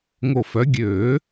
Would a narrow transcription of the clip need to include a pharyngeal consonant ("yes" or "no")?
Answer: no